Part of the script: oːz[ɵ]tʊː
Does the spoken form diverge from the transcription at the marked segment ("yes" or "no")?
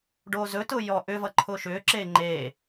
no